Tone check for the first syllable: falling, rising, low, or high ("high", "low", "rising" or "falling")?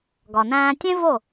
low